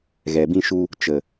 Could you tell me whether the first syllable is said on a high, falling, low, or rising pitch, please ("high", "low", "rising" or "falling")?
low